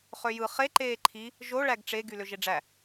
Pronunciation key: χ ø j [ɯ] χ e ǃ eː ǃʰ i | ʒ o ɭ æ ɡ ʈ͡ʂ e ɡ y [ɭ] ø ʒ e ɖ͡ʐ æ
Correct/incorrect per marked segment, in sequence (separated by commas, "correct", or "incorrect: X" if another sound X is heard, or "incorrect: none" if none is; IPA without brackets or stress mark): correct, incorrect: l